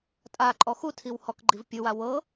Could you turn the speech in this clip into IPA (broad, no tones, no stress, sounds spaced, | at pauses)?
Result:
tʼ a ǃʼ ɔ x u tʰ i w h ɔ k ɡ͡ǃ i v pʲ ɯ w a w ɤ